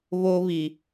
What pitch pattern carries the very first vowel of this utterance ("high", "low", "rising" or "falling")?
high